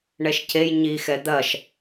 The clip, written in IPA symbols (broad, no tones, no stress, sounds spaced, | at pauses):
ɳ ɛ ʃ c e j ɲ i x ɛ d̪ ɐ ʃ